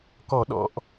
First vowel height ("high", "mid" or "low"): mid